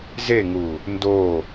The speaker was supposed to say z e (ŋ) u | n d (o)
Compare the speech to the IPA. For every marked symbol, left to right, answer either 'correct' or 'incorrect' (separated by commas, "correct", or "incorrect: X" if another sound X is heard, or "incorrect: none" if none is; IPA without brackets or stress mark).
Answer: correct, correct